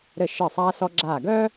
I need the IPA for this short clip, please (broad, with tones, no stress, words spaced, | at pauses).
ɾɘ˧˩ʃɘː˧˩ sˤaː˧sɔ˧ɡ͡ǁaː˧˩ɡœː˥